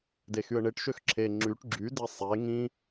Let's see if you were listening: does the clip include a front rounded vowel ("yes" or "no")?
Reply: yes